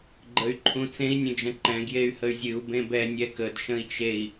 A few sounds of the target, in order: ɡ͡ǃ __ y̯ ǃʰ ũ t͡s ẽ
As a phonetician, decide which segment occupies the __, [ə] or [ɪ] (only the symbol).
ə